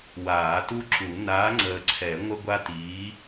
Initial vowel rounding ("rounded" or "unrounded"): unrounded